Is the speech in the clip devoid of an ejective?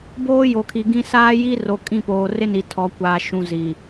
no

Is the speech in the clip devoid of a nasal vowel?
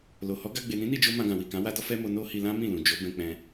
no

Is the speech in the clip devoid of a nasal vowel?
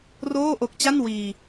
yes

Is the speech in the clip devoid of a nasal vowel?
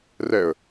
yes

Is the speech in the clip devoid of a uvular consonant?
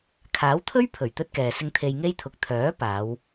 yes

